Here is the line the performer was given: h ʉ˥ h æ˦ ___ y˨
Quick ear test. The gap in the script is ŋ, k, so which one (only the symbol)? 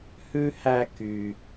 k